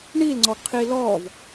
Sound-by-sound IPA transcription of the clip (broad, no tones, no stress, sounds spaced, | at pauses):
ɳ i l ŋ͡ǀ ɔ ɡ qʰ i l ɔ v